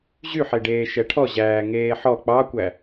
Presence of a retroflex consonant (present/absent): present